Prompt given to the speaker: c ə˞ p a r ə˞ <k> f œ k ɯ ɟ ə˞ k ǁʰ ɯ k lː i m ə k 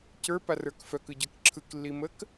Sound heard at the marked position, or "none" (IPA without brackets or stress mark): k